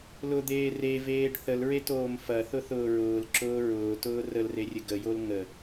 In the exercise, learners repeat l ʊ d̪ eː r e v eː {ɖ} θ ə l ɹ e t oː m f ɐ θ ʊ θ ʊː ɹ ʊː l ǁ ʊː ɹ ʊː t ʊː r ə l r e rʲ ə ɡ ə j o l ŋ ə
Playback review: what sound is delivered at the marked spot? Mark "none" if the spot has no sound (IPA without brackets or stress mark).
ɖ